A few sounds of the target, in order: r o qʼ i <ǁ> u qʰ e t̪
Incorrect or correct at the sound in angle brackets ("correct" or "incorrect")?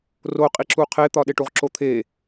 correct